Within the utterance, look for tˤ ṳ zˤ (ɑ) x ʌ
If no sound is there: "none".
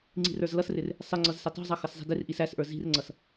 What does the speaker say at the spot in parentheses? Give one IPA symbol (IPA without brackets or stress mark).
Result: ʌ